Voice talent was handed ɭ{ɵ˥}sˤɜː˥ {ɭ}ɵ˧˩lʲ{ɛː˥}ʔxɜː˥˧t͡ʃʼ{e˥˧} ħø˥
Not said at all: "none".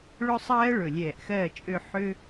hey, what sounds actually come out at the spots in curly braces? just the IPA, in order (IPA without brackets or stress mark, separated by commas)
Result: ɵ˥, ɭ, ɛː˧˩, ø˥˧